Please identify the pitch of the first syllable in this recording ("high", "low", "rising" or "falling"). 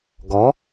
rising